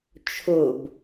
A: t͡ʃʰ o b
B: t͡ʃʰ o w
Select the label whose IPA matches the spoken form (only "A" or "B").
A